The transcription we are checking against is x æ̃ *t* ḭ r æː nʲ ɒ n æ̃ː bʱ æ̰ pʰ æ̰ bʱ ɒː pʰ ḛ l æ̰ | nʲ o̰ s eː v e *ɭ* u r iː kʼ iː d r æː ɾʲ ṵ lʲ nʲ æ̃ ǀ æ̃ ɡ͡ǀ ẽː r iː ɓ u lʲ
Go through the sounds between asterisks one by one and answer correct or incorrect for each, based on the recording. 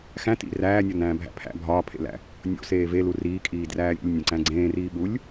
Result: correct, incorrect: l

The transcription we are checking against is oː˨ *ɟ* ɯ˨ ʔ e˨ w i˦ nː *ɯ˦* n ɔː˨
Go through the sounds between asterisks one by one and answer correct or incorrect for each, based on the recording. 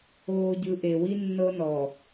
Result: correct, incorrect: ɤ˦

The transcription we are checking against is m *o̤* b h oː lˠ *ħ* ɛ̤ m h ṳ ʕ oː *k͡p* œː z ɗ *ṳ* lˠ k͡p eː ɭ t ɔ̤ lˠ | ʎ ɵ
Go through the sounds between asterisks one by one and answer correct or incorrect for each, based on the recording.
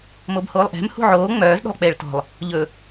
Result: incorrect: o, incorrect: ʔ, incorrect: ŋ͡m, incorrect: o̤

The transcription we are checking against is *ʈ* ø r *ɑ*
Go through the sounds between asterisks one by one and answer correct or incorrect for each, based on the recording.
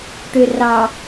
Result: correct, correct

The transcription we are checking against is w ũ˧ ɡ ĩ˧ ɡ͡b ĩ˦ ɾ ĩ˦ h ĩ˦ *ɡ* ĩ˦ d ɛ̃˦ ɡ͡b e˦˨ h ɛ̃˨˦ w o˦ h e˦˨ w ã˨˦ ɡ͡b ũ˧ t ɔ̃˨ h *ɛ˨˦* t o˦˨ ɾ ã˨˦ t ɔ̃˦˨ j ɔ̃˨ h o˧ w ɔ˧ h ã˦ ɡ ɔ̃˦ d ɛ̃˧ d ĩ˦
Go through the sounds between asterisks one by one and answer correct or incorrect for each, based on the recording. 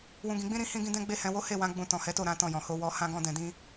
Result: correct, correct

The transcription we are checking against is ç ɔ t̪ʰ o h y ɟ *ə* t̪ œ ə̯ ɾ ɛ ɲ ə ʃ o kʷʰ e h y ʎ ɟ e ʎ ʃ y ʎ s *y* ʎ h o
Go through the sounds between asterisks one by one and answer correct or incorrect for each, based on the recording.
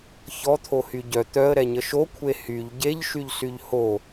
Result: incorrect: œ, correct

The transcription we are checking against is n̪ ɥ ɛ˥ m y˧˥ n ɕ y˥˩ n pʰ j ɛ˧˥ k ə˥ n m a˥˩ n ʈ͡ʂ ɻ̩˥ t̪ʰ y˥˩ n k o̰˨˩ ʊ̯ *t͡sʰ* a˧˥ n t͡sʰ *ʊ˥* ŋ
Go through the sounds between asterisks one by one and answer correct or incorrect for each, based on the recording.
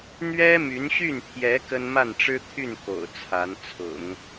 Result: correct, incorrect: ʊ̰˨˩˦

